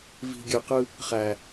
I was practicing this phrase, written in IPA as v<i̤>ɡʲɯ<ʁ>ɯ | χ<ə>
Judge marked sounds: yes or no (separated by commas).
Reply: yes, no, no